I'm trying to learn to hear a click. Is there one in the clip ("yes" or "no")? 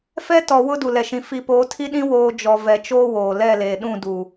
no